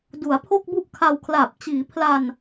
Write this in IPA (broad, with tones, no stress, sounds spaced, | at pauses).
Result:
d u˩˦ a̯ pʰ o˥˩ k̚ b u˥˩ ʔ kʰ a˧ w kʰ l aː˨˩ p̚ t͡ɕ iː˩˦ pʰ l a˧ n